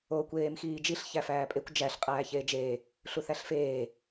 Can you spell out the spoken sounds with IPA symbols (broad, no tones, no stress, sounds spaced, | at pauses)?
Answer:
o kʷ eː m x iː d͡ʒ i ɬ ç æ f æː pʼ e kʷ d͡ʒ æ ɬ qʼ æː ç eː d͡ʒ eː | ɬ u θ æ ɬ f eː